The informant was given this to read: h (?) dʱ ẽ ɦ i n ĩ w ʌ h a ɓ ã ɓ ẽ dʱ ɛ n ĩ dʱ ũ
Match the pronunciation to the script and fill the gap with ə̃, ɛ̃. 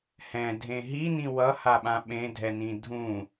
ɛ̃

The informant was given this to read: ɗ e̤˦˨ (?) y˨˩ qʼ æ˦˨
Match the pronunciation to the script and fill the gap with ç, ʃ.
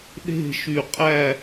ʃ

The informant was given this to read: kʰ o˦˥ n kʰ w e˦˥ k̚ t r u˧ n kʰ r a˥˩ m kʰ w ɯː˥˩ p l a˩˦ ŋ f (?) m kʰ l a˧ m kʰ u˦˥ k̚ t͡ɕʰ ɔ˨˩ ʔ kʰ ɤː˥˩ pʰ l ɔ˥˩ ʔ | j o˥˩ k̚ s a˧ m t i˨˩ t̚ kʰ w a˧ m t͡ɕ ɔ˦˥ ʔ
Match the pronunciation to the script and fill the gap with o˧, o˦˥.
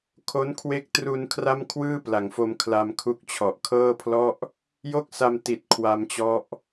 o˧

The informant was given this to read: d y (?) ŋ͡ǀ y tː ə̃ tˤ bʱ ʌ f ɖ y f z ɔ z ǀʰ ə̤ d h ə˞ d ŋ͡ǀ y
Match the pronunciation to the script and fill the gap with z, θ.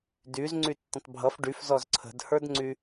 z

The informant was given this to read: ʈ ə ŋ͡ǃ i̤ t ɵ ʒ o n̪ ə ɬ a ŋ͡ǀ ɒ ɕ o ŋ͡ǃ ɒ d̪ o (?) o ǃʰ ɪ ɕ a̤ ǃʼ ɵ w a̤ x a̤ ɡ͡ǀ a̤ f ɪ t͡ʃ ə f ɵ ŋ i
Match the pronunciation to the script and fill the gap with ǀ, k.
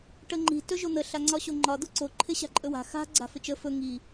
ǀ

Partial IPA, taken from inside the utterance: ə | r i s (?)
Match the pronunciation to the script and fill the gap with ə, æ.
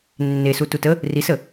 ə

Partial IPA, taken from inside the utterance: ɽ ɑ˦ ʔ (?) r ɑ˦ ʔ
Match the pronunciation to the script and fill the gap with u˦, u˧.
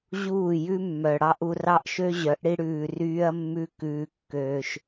u˧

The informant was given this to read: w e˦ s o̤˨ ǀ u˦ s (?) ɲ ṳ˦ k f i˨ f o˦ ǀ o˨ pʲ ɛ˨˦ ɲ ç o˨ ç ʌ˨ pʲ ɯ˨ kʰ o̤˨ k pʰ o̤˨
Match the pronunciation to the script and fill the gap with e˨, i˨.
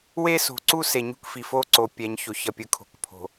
e˨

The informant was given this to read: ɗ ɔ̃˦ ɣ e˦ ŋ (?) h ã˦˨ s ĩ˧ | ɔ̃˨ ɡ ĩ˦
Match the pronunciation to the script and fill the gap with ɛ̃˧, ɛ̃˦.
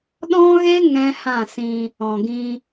ɛ̃˦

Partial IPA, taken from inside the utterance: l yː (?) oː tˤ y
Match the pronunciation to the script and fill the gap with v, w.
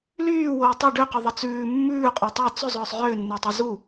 w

